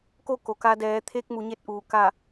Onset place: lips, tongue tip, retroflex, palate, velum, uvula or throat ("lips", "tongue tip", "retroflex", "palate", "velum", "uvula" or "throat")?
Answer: velum